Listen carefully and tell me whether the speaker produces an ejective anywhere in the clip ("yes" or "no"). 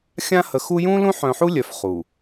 no